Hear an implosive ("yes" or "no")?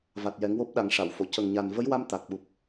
yes